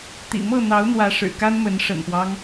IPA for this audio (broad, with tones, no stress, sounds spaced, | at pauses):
t̪ ḭ˨˩ m ɤ˥˨ n̪ ɑ˨˦ ʊ̯ n̪ w ä˨˦ ʂ ɻ̩˨˩ k a˦ n m ə˨˦ n ʂ ə̰˨˩ n p w ɑ˦ ŋ